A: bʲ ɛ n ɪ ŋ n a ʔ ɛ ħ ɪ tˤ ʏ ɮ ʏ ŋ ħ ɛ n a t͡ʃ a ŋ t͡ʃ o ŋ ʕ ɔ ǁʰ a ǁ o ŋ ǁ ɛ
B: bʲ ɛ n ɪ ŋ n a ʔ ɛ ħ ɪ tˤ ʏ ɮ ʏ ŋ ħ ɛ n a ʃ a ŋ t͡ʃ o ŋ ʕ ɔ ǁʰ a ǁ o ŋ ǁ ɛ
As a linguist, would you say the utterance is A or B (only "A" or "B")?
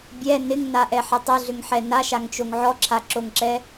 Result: B